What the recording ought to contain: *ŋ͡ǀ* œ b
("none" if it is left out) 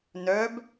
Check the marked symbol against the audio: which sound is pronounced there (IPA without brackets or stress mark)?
n